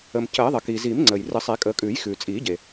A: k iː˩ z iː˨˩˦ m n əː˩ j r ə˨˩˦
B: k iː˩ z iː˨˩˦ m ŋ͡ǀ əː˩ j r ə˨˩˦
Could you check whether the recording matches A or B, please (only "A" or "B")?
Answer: B